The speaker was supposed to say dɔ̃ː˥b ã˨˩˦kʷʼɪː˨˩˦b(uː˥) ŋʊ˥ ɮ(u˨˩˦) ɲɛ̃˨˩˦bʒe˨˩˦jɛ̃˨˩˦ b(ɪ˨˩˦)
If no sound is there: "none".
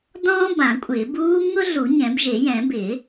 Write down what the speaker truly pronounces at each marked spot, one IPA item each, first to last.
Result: uː˥, u˨˩˦, ɪ˨˩˦

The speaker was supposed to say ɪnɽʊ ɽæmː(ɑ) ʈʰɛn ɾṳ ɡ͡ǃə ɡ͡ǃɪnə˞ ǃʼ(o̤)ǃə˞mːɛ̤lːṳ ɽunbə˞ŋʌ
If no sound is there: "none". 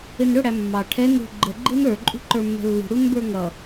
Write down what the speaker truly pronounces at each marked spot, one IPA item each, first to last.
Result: ɑ, ṳ

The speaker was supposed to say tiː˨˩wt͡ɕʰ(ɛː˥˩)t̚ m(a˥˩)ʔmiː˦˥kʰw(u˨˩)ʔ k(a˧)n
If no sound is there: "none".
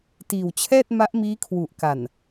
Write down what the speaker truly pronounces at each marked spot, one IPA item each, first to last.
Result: ɛː˥˩, a˦˥, u˨˩, a˨˩

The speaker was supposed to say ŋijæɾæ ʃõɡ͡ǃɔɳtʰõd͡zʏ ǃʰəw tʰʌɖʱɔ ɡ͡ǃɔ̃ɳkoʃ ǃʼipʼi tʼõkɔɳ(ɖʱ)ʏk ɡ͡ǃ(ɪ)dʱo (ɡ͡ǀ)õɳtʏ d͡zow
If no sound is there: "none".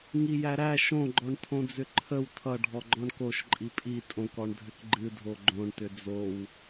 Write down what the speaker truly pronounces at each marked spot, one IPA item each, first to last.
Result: dʱ, ɨ, ɡ͡ǃ

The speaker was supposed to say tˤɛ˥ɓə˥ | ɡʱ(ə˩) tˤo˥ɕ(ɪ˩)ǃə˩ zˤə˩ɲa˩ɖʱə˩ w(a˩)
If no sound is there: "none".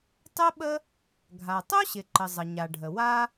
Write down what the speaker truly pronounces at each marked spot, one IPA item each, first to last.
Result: a˩, ɪ˩, a˥

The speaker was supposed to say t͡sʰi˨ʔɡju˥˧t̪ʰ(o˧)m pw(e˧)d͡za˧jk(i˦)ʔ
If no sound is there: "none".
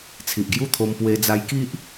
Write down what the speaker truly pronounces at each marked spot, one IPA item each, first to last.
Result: o˧, e˧, i˦

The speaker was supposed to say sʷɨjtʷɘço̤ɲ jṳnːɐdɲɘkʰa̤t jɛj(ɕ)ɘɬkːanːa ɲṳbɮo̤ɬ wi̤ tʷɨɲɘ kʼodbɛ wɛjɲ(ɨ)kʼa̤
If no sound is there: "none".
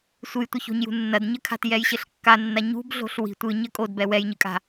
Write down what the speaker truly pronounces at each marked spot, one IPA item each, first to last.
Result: ɕ, ɨ

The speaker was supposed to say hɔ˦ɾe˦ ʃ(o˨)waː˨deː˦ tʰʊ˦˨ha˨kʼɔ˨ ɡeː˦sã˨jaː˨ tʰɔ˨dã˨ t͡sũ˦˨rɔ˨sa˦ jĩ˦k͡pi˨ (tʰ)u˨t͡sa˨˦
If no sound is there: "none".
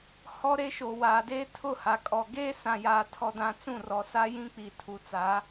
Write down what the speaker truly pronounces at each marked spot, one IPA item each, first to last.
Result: o˨, tʰ

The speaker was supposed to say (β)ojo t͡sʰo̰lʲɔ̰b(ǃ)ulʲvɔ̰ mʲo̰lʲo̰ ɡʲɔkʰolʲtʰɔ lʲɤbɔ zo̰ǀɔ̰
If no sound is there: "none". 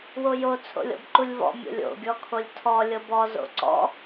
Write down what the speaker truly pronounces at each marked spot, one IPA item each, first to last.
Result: w, ǃ

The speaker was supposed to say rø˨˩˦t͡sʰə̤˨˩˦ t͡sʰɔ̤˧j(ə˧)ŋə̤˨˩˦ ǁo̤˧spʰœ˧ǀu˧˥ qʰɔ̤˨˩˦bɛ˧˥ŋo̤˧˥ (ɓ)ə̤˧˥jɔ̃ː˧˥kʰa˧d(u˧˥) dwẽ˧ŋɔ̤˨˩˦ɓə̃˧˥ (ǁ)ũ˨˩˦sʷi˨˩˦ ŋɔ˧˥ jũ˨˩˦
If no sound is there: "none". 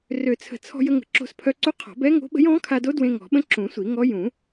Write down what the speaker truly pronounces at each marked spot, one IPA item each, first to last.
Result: ə˧, ɓ, o˧˥, ǁ

